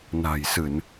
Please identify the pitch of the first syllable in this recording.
low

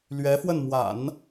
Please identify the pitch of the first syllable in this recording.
rising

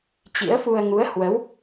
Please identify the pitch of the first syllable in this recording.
rising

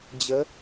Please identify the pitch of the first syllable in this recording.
rising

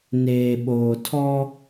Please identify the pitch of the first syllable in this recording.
low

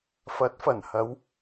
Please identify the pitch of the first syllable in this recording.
rising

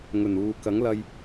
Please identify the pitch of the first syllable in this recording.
low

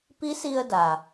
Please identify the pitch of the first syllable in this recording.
rising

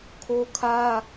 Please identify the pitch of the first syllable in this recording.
high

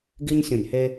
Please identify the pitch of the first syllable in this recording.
high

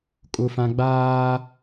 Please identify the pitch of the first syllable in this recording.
high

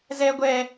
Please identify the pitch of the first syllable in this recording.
high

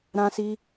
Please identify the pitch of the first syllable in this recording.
high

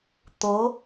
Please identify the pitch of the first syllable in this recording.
rising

